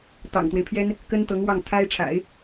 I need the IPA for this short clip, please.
t̪ ɑ̰˨˩ ŋ t̪ w e˦ ɪ̯ pʰ j ɛ˥ n | k ə˥ n t̪ ɤ˧˥ ŋ w ɑ˥˩ ŋ t̪ʰ a˥ ɪ̯ ʈ͡ʂʰ a̰˨˩˦ ɪ̯

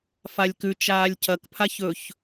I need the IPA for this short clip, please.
f a lʲ k ʉ t͡ʃ aː lʲ cʰ ɐ k pʰ a ç ɵ ç

